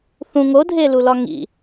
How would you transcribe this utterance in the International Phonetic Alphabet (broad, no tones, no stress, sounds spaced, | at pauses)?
θ ũ ŋ o dʱ e l u l ɒ ŋ ḭ